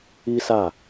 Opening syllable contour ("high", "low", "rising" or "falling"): high